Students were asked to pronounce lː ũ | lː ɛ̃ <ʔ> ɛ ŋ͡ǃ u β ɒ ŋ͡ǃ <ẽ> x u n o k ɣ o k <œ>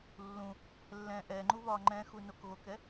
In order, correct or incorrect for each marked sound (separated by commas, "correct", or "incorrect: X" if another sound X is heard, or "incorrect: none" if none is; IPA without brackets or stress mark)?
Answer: correct, incorrect: ɛ̃, incorrect: ɛ